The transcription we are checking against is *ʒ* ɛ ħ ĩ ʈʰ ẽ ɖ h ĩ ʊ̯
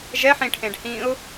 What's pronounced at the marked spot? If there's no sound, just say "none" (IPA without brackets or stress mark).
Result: ʒ